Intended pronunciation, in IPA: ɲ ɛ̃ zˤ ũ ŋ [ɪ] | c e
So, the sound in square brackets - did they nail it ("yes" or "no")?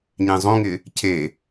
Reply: yes